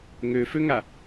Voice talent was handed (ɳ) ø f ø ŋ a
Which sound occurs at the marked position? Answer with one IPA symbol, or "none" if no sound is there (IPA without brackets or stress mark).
ŋ